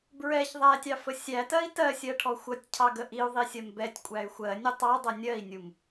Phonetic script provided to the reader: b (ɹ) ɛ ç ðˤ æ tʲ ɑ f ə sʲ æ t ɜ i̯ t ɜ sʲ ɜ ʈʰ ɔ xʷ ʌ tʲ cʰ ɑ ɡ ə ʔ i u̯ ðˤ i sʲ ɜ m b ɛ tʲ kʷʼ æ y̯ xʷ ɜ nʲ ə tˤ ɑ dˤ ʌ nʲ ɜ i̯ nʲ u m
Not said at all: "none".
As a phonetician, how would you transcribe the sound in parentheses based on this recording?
ɹ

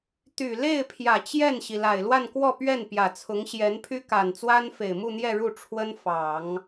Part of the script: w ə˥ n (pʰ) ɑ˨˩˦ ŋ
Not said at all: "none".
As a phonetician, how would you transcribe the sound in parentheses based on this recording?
f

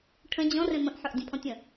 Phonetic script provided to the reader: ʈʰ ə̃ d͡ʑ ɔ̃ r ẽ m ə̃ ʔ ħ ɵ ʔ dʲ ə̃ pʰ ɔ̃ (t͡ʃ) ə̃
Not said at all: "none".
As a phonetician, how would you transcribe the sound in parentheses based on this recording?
tʲ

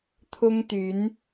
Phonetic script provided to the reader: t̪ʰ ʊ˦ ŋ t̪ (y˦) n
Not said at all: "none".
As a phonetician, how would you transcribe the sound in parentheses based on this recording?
y˨˦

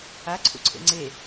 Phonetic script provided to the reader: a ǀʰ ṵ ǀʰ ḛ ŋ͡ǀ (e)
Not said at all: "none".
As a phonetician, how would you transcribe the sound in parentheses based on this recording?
e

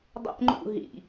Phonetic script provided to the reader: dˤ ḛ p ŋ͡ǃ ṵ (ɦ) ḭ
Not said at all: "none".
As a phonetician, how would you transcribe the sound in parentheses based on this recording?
ɦ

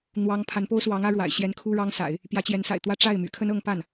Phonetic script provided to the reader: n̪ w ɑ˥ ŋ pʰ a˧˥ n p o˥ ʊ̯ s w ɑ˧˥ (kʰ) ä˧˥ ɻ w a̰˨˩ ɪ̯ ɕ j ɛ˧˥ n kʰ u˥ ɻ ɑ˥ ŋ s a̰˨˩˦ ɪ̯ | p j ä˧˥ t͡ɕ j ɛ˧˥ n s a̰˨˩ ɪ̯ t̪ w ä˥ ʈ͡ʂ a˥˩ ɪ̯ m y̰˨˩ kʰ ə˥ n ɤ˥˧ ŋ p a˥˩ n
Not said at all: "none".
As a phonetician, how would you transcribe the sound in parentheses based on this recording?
ŋ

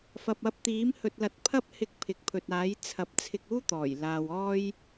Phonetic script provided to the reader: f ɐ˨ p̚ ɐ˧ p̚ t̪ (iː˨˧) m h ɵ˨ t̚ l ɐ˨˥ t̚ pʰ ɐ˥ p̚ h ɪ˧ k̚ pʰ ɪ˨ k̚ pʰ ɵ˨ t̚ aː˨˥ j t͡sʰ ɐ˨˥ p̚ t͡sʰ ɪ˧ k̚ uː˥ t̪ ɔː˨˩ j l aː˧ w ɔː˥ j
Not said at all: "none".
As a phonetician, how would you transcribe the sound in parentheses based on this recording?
iː˨˥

